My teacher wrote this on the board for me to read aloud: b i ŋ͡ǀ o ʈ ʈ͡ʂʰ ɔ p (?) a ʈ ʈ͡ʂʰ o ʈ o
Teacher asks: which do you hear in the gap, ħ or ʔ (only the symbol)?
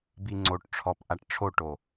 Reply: ʔ